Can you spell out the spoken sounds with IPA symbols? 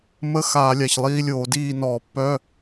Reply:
m ə˧˥˧ x aː˧˩˧ lʲ a˩˧˩ ç lˠ iː˧˥˧ lʲ oː˧˩˧ d iː˥˨ n ɔː˧˩˧ pː œ˧˥˧

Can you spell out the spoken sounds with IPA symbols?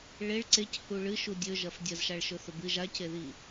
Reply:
ɭ e ɭ ǀ e c h u ɭ ɨ ʃ u dʲ ɵ ʒ ɐ f dʲ ɐ z ʃ a ɭ ʃ ɵ θ ɵ b ɨ ʒ a c e ð i

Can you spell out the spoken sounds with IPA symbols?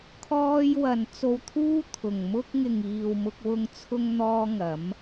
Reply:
kʰ ɔː˧ j w ɐ˨ n t͡s o˧ w t̪ʰ uː˥ t̪ʰ ʊ˨ ŋ m ʊ˧ k̚ ŋ ɪ˨ ŋ iː˨ w m ʊ˧ k̚ w ʊ˧ ŋ t͡sʰ ʊ˧ ŋ n̪ ɔː˧ ŋ ɐ˨˧ m

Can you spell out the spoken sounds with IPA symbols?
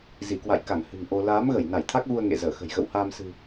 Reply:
z i˧˩ k w a̰˧˨ j k a˧˩ ŋ h ɨ̤˨˩ ŋ ʔ o˧ l aː˨˦ m ɣ ə˧˩ j n a˧˩ j t̪ʰ a˦˥ k̚ ɣ u˧ ə̯ ŋ ḛ˧˨ z əː˧˩ x ə̤˨˩ j ɣ ə̰˧˨ w h aː˧ m s ɨ̤˨˩

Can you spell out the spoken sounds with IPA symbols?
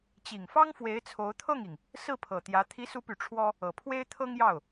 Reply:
t͡ɕ i˨˩ ŋ f ɑ˥ ŋ f w e˧˥ ɪ̯ t͡sʰ o˧˥ ʊ̯ t̪ʰ ɤ˥˩ ŋ i˩ ŋ | s ɹ̩˥˩ pʰ ɤ˨˩ t̪ j ä˧˥ t̪ʰ i˧˥ s u˧˥ p y˨˩ ʈ͡ʂʰ w ɔ˥ | ɤ˨˩ pʰ w e˥ ɪ̯ t̪ʰ ɤ˥ ŋ j ɑ˥˩ ʊ̯

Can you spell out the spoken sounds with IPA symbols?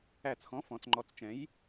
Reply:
æ˧˩ t͡s x ɔ̃˨˥ f ɔ̃˩˧ t͡s ŋ͡ǃ ɔ˨˥ t͡s t͡ʃ ɛ̃˨˥ j

